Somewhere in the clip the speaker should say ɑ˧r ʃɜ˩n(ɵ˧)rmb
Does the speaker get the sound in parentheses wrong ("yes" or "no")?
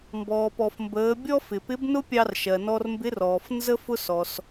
yes